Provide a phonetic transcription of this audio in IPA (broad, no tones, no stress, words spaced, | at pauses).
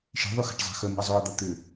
ʃe̤ðˤyxa̤ʈ zˤa̤xœmo̤ə̯ zˤœə̯d̪a t̪ʏ